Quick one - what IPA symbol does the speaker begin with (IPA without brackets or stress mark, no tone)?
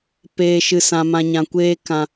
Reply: p